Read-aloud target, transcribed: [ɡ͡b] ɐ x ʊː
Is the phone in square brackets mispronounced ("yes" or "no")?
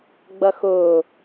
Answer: no